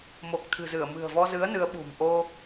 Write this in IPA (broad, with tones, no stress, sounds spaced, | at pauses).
m o˨˩ k̚ t̪ʰ ɨ̤˨˩ z ɨ˧˩ ə̯ m ɨ̤˨˩ ə̯ v ɔ˧ z ɨ˨˦ ə̯ n ɨ˨˦ ə̯ ɓ ṳ˨˩ m ʔ o˧